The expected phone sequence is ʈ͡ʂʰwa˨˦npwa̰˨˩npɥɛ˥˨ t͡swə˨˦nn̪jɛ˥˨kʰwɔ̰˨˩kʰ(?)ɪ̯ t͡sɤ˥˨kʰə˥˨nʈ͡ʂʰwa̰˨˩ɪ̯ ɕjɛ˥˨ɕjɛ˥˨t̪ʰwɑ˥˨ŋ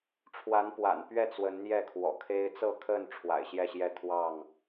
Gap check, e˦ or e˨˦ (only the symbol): e˦